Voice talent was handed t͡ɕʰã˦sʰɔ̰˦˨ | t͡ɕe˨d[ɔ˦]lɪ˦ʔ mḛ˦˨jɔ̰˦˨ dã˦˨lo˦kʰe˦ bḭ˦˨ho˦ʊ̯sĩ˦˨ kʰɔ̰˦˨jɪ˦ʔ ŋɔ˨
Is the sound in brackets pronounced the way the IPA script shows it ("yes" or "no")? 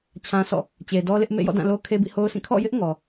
yes